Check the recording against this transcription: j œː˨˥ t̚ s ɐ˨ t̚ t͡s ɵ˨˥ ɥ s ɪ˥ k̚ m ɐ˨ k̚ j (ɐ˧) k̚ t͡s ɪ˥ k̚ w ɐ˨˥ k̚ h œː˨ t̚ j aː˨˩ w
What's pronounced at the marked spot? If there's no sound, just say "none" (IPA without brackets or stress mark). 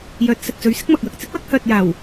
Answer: ɐ˨